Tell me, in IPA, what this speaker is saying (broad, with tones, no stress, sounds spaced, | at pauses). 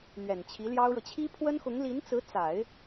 n̪ ɥ ɛ˨˩ n t͡ɕʰ i˧˥ l j ɑ˥ ʊ̯ ɻ ɤ˨ t͡ɕʰ i˥ pʰ w ə˥ n x ʊ˧˥ ŋ l i˧˥ n t͡s ɹ̩˧˥ t͡s a˨˩˦ ɪ̯